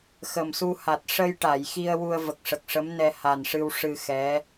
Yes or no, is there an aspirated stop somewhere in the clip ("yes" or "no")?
no